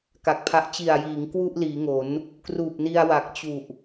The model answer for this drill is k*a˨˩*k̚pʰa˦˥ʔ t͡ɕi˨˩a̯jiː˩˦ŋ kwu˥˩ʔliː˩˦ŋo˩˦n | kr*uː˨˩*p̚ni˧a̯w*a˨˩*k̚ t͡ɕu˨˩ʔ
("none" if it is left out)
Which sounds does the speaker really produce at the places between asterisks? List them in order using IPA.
a˨˩, uː˨˩, a˨˩

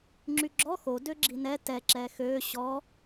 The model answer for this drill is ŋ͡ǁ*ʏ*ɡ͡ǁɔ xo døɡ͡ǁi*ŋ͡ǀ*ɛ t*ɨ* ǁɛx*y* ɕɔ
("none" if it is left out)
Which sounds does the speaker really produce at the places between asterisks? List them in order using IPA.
y, n, ɛ, ø

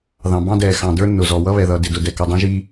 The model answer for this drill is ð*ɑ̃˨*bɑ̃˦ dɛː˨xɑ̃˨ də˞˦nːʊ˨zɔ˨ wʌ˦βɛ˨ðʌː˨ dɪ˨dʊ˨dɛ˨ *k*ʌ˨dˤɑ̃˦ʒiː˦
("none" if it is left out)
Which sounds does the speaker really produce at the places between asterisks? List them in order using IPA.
ɑ̃˨, k

